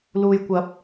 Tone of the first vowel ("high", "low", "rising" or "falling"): low